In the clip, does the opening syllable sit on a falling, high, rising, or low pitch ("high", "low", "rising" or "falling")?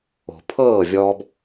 low